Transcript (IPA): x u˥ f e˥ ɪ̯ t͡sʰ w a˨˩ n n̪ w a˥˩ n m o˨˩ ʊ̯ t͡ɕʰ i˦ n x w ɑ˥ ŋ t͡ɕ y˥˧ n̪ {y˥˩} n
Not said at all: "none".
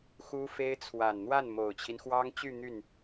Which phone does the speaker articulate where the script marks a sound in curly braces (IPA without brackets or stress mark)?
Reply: y˥˩